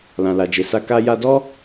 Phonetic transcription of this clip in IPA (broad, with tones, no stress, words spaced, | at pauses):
lã˨la˨d͡ʒe˨sa˧ ka˧ja˧dɔ˦